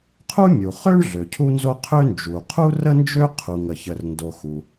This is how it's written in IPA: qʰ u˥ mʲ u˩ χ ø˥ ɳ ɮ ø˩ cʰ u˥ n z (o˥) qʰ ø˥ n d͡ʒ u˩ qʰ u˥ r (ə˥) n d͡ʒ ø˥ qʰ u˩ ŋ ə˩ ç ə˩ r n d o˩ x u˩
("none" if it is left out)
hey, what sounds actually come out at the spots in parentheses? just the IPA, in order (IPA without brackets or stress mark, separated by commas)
o˥, ə˥